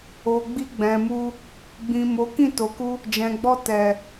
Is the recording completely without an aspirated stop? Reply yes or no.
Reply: yes